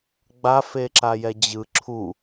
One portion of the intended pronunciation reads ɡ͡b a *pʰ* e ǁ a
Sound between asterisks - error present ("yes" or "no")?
yes